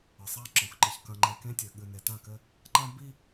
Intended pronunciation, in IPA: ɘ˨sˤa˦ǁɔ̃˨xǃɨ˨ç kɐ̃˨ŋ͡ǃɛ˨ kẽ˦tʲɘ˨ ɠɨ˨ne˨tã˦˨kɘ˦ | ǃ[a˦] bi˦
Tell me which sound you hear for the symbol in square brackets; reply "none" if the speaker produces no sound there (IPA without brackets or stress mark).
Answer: ã˦